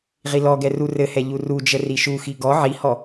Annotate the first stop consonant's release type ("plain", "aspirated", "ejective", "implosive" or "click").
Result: plain